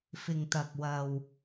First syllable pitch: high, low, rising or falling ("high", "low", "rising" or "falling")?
low